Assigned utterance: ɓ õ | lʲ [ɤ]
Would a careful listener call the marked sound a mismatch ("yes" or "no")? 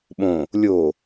yes